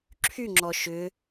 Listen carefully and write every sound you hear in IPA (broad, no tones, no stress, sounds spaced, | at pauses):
ǁʰ y ŋ͡ǁ ɔ ʃ ʏ